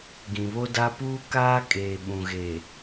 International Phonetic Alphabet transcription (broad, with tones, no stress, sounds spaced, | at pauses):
ɡ ĩ˨ β o˦ d aː˦ p uː˦ k aː˦ kʼ eː˨ ɓ ũ˨ ɣ eː˨